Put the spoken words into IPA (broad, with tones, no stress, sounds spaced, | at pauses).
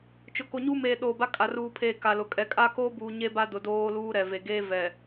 t͡ʃ ʊ˨ k o˨ ɲ uː˦ m eː˨ ɗ oː˨ b a˦ kʼ a˨ r uː˨ pʰ eː˨ k a˨ l ʊ˨ kʼ ɛ˨ kʼ a˦ k oː˦ b uː˨ ɲ e˦ b a˦ d ʊ˨ d oː˦ l uː˦ ɾ ɛ˨ v e˨ ɡ eː˦ v ɛ˨